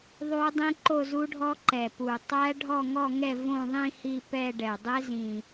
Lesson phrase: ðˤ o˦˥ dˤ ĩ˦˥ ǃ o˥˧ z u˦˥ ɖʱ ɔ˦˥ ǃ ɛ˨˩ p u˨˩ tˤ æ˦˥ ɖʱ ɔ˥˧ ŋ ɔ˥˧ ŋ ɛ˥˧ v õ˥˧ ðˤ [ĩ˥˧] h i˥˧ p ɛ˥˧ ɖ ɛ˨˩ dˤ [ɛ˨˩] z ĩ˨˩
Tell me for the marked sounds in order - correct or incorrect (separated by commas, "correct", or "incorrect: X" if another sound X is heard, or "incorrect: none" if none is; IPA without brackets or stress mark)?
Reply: correct, incorrect: ɛ˦˥